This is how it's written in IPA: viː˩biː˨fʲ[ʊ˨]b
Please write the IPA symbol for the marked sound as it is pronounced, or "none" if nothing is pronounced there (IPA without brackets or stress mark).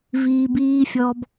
ɔ˨